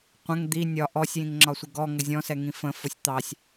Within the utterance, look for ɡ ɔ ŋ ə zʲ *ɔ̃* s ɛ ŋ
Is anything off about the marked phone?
no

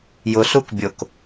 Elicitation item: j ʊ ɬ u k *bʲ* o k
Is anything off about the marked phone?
no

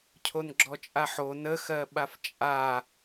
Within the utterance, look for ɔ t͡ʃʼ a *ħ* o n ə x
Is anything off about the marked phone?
no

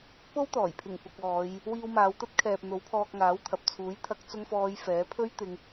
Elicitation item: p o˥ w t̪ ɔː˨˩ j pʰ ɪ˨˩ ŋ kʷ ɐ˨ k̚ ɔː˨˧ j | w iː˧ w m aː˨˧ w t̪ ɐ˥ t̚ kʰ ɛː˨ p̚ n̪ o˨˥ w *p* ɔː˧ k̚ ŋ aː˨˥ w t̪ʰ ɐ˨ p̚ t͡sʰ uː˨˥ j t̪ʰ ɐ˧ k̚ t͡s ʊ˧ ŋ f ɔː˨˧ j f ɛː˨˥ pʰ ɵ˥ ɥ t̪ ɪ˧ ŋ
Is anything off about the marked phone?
yes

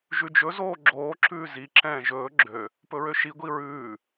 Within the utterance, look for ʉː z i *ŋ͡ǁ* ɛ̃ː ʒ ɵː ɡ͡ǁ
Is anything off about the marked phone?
yes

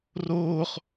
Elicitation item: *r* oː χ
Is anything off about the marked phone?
no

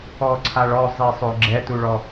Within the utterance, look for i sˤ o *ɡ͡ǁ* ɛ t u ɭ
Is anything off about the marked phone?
no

